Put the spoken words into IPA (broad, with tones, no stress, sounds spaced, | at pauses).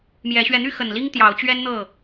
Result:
m j ɛ˨˦ ɕ ɥ ɛ˧ n̪ y˦ x ə˨˩ n l i˦ ŋ t̪ j ɑ˨˦ ʊ̯ t͡ɕ ɥ ɛ˦ n n̪ ɤ˥˨